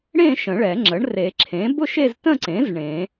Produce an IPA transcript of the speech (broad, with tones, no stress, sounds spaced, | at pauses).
ɽ ẽ˥˧ ʃ ə̃˨˩˦ ɭ ɛ˨˩˦ ŋ͡ǁ ə˩˥ ɳ r e˨˩˦ ǁʰ ẽ˩˥ b ʊ˥˧ ʃ e˥˧ z t ə̃˥˧ ǀ ẽ˩˥ z ɳ ẽ˨˩˦